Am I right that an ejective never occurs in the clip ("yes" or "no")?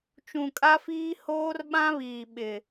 no